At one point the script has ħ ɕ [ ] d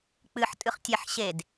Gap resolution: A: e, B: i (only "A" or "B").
A